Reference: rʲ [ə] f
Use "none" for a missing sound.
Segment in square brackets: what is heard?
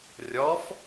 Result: ɔ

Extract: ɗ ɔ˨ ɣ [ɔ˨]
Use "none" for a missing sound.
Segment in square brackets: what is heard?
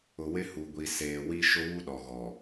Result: ɔ˨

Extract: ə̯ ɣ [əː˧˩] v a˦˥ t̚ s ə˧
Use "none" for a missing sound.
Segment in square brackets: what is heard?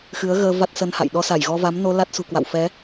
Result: əː˧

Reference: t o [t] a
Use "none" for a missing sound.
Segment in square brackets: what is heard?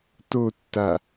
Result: tː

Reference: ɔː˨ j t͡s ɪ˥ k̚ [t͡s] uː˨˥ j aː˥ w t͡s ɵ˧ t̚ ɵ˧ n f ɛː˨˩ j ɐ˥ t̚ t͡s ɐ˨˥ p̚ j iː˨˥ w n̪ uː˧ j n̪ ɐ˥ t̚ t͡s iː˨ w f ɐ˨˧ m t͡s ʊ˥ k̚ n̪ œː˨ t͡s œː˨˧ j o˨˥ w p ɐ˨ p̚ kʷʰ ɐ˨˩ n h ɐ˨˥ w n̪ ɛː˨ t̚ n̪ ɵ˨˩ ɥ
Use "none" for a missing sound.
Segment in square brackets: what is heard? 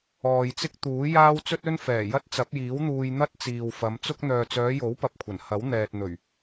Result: t̪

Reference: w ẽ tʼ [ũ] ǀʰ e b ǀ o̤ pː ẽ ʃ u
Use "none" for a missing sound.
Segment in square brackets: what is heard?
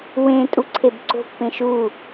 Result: u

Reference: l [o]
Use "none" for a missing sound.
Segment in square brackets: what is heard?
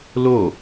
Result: o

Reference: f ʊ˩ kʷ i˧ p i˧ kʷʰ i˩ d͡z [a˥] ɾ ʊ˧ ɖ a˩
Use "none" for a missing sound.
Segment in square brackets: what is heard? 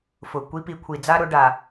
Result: a˥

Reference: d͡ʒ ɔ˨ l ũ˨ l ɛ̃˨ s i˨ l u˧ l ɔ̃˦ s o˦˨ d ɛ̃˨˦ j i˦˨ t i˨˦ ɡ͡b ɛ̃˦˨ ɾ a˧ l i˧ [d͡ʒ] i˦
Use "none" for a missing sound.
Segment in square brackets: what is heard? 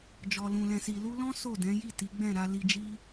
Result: d͡ʒ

